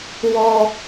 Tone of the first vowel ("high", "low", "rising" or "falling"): low